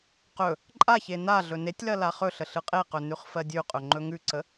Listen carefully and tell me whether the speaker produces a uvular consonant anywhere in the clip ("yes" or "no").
yes